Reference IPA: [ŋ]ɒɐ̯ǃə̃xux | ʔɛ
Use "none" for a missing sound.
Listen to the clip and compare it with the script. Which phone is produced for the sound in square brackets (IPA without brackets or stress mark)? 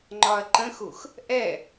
ŋ͡ǃ